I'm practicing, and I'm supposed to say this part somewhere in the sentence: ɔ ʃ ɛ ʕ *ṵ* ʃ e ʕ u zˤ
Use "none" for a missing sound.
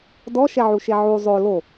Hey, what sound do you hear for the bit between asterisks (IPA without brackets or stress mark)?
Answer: u